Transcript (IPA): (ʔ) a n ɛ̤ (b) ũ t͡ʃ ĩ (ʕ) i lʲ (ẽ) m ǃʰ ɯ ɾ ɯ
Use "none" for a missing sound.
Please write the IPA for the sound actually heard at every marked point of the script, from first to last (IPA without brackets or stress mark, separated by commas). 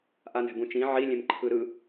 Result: ʔ, b, ʕ, ẽ